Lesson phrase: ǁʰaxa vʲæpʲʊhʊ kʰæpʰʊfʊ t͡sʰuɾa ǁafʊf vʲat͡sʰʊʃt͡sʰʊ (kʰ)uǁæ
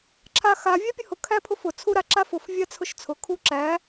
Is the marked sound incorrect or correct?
correct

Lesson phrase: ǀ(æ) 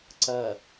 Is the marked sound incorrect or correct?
incorrect: ɐ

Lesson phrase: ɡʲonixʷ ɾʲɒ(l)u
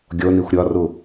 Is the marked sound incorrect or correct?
incorrect: r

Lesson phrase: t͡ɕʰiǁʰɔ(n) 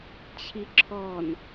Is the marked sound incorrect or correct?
correct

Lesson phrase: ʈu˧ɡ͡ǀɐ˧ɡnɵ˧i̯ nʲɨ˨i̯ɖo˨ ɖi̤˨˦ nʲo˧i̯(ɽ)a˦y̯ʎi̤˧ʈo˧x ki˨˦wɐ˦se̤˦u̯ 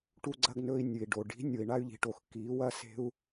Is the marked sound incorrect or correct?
incorrect: ɳ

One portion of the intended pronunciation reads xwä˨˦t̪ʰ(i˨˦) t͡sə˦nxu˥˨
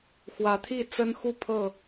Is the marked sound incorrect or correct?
incorrect: i˥˨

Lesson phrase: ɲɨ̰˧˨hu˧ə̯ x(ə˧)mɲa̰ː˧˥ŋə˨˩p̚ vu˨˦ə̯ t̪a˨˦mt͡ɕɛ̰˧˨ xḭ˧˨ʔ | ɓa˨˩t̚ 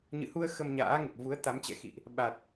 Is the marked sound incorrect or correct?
correct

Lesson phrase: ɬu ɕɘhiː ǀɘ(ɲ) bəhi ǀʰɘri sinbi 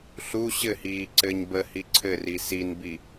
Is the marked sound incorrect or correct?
correct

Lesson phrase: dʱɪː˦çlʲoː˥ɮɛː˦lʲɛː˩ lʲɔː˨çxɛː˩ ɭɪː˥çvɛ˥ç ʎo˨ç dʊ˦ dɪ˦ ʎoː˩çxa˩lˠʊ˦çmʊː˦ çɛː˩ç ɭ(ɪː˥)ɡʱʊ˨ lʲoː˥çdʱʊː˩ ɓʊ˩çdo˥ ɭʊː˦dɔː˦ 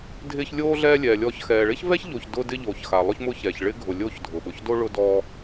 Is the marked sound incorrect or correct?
correct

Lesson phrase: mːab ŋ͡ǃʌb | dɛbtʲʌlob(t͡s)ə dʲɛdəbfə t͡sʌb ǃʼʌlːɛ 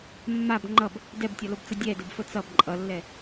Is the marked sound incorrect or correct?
correct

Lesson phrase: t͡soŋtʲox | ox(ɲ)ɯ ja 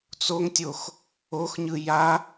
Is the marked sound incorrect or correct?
correct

